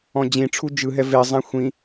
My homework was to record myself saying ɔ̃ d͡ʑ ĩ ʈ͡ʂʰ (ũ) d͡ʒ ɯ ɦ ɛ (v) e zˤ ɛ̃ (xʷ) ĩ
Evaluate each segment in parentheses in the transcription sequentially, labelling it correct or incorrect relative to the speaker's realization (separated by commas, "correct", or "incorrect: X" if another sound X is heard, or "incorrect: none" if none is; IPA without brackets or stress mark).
incorrect: u, correct, correct